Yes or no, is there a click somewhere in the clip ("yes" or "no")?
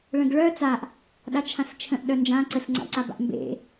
yes